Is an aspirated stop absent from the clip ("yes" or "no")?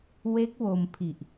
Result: no